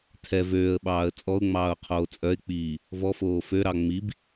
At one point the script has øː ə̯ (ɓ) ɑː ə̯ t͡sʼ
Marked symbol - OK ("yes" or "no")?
yes